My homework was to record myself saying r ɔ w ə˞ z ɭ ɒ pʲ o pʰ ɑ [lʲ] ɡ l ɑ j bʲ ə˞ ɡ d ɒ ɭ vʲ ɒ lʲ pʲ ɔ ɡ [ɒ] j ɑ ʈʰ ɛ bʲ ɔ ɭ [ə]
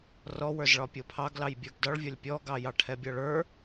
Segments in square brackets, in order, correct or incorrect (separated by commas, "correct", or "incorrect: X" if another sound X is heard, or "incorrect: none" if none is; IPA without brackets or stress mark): incorrect: none, incorrect: ɑ, incorrect: ə˞